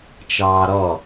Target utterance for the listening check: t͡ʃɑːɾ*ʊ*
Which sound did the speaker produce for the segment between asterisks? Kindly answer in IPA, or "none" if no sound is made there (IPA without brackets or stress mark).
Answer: ɔ